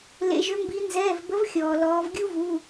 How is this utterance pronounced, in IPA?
l ḛ˩ ʒ ʏ˩˧ m b i˩˧ n z ɛː˩˧˩ v b ə˨˥ v xʲ ɔː˩ l ɔː˩˧ v ɡʲ u˥ v u˩˧˩

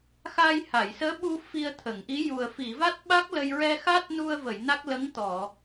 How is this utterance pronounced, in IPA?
x a˧ j h a˨˩˨ j s əː˧˥ ɓ u˧ f i˧ ə̯ t̪ʰ ə˨˩˨ ŋ ʔ i˧˥ j u˨˩ ə̯ f i˨˩˨ v a˦˥ t̚ ɓ a˦˥ k̚ l ə˧ j ɹ ɛ˧ x a˦˥ t̚ n u˧ ə̯ v ə˨˩˨ j n a˦˥ k̚ l ə˧˥ ŋ t̪ ɔ˨˩˨

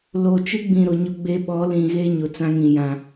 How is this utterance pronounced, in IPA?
l o˨ t͡ʃ ɪ˦ ɡ͡b ĩ˨ ɾ ʊ˨ ɲ ʊ˦ ɡ͡b e˦ ɓ ɔ˨˦ l ĩ˨ ɣ e˦ ɲ ʊ˨ t͡s ã˦ ŋ ĩ˨ j ã˦

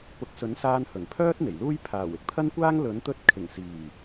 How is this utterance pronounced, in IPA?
p ʊ˨˥ k̚ s ɵ˨˥ n s aː˧ n h ɵ˨˩ n pʰ œː˥ t̚ n̪ e˨˩ j l uː˥ j pʰ aː˨˩ w ɪ˨˥ k̚ t̪ʰ ɐ˥ n kʷ aː˥ ŋ l ɵ˨˥ n t̪ ɵ˧ t̚ kʰ ɪ˨˩ ŋ s iː˨˩

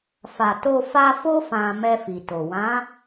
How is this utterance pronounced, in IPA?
f a˨ t o˧ f a˧ f o˦ f ã˧ m ɛ˧ f i˨ t o˨ w ã˨˦

